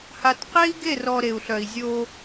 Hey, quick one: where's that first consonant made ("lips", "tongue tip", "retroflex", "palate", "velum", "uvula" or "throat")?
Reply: throat